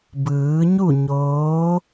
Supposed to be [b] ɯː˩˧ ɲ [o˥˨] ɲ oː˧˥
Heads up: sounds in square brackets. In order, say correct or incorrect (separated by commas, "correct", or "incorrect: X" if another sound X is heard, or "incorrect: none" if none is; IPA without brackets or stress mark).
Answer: correct, incorrect: u˥˨